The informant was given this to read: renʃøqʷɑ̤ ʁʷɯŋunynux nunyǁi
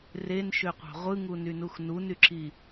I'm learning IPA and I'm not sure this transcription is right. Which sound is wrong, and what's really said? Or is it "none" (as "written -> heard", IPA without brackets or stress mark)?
none